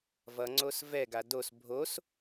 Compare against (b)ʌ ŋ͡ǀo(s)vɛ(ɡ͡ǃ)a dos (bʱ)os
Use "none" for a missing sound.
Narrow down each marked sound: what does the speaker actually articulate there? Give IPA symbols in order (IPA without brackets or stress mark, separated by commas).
v, s, ɡ, bʱ